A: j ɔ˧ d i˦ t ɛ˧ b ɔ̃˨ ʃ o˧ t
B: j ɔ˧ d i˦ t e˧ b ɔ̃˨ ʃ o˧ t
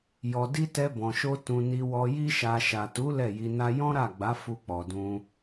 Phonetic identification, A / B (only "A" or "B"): A